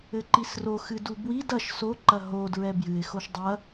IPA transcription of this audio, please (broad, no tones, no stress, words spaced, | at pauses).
ɘǃisroxɨd ubwid ɐʃ soǃɐ ɦodɹɛ bjɨɪ̯xoʃ dˤɐ